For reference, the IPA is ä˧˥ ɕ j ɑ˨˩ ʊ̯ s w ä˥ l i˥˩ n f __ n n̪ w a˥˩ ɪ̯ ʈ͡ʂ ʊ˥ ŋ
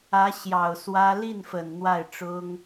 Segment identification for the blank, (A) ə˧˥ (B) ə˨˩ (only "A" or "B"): B